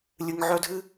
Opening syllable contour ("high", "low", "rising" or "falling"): low